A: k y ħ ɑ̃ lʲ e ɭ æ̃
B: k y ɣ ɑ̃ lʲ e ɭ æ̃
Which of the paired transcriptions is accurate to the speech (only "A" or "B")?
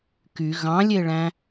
B